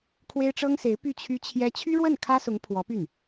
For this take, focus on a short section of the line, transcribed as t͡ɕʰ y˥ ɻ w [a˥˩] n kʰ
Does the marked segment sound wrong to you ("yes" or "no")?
yes